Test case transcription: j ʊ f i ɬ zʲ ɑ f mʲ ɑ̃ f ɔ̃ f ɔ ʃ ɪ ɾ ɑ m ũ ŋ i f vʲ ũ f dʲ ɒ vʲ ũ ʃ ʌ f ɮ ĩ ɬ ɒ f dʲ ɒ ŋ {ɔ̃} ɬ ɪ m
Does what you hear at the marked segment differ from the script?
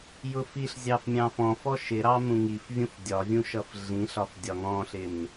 no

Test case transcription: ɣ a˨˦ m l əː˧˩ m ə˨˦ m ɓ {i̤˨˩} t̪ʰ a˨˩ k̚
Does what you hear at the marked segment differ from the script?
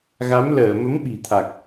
no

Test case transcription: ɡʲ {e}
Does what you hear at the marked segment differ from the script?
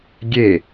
no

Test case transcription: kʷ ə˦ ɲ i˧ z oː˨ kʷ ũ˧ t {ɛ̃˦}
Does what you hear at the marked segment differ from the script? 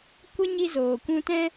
no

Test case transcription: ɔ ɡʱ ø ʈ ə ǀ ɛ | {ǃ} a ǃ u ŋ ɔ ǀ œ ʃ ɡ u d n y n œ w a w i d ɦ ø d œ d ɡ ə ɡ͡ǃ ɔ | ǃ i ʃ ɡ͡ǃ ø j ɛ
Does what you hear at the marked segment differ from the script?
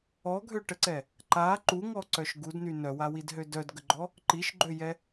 no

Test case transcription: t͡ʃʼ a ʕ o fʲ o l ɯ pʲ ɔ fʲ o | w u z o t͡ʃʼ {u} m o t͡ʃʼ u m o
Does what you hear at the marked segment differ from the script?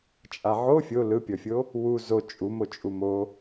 no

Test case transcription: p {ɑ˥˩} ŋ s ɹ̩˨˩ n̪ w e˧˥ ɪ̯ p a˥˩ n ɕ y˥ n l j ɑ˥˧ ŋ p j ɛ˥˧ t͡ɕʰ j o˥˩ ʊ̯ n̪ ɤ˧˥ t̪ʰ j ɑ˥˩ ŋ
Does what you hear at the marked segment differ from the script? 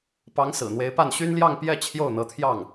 yes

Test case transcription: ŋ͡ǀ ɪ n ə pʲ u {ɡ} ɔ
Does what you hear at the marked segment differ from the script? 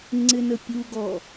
no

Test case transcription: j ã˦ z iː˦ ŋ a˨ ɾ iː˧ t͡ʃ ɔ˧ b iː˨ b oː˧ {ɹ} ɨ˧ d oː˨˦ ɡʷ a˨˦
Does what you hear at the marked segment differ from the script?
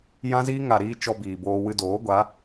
yes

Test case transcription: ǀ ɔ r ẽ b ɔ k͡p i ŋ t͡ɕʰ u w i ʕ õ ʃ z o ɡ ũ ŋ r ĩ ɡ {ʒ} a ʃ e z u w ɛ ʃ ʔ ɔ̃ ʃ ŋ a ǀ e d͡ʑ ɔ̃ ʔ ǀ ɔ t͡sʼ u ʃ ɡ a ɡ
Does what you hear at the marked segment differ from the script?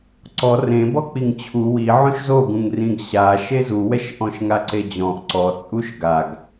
yes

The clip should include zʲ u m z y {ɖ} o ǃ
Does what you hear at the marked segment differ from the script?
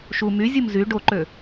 no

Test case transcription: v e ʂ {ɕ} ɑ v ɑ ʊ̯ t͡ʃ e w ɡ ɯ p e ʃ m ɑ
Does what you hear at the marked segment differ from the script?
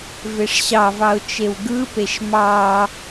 no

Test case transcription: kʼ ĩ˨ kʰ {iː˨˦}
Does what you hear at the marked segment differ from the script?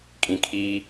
yes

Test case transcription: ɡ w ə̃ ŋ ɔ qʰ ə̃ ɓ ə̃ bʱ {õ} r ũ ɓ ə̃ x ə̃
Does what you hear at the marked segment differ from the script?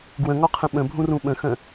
yes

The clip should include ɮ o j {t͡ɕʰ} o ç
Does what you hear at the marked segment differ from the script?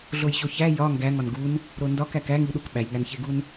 yes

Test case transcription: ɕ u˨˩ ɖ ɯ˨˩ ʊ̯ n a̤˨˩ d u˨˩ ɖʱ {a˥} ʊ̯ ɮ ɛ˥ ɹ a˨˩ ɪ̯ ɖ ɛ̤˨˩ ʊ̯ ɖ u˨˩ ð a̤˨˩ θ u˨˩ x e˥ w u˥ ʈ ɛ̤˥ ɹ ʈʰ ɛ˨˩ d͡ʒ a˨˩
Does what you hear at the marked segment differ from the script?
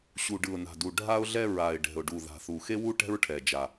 no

